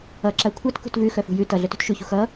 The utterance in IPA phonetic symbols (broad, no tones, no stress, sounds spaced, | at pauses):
ʌ ǁ a kʷʰ a t k ṳ t v ʉ x œ f ṳ j ʉ t ʌ ɮ œ t ṳ t ʃ ʉ ç ṳ x ʌ